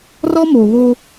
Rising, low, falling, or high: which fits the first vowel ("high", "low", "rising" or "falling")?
high